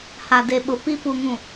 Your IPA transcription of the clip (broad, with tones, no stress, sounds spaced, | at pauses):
h a˨ d e˨ ɓ ʊ˨ p i˦ p u˨ ŋ ũ˨